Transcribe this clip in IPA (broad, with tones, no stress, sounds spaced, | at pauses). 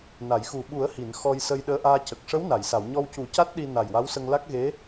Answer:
n a˨˩˨ j x u˨˩ ɓ u˨˩˦ ə̯ h i˨˩˨ n x ɔ˧ j s ə˧ j ɗ əː˧ ʔ aː˧ c ə˨˩ k̚ ʂ ə˧˥ w n a˨˩˨ j s a˨˩˨ w ɲ ɔ˧ w c u˨˩˦ c a˦˥ t̚ ɗ i˧ n a˨˩ j w a˧˥ w s ə˧ ŋ l a˦˥ k̚ ɣ e˧˥